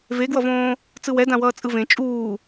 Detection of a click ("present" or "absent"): absent